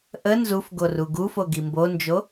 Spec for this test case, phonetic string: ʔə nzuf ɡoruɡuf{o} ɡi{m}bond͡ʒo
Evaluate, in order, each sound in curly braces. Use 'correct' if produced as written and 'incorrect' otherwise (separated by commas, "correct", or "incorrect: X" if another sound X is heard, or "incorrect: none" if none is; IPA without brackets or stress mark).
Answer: correct, correct